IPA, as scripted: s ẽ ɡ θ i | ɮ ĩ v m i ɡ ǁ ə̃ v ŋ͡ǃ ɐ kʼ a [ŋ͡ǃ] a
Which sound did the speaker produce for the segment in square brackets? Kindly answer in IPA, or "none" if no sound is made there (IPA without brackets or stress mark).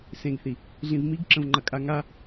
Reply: ŋ